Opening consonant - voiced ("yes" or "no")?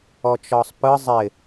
no